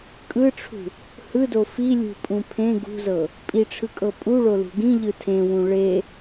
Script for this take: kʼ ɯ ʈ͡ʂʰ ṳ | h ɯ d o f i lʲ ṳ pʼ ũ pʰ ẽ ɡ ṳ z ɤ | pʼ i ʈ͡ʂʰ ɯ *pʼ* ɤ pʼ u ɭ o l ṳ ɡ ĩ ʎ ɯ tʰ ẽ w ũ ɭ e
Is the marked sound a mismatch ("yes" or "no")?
yes